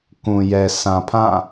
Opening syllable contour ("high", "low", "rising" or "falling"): low